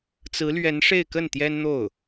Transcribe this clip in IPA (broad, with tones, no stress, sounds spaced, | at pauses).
t͡s ɹ̩˧˥ l ɥ ɛ˧˥ n ʂ e˥˧ ɪ̯ k ə˥˩ n t̪ j ɛ˥ n n̪ o˥˩ ʊ̯